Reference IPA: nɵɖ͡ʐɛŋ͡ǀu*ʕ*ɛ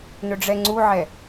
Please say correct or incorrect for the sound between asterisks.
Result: correct